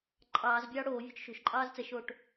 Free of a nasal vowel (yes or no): yes